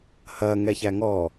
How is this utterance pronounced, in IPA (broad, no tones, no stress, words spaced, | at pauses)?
hɐ ŋɛçæŋɔ